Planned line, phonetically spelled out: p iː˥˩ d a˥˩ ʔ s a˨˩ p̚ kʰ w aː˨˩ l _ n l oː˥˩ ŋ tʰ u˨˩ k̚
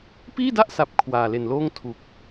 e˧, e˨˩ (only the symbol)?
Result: e˨˩